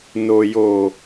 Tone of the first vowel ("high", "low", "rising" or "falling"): low